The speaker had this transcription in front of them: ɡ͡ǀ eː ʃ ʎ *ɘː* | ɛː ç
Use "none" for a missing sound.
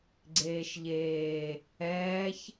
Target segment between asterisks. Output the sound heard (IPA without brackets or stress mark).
eː